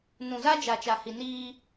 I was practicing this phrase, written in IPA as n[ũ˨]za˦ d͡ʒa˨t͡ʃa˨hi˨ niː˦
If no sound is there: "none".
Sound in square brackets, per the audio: ũ˨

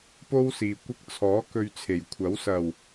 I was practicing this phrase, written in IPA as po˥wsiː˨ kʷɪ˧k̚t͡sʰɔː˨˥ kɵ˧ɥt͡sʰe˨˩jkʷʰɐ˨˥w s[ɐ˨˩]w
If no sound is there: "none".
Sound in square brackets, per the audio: ɐ˨˩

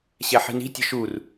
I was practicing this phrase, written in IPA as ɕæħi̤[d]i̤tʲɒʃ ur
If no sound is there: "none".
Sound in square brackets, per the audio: n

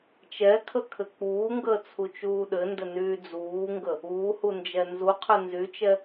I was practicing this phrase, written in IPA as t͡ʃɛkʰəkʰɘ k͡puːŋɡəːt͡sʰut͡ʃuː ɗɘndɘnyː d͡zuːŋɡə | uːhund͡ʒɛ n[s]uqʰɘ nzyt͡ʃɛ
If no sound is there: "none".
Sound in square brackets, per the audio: z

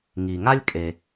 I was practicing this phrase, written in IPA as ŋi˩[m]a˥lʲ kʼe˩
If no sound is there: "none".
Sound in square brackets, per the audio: ŋ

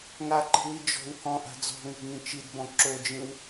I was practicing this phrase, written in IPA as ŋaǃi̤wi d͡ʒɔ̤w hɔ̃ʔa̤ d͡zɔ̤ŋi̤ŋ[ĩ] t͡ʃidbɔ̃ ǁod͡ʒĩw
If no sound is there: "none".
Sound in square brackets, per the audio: ĩ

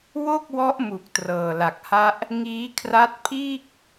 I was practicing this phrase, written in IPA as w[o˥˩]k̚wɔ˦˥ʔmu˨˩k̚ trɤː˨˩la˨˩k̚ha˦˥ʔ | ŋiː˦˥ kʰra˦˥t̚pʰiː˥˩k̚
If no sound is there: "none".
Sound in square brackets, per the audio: o˥˩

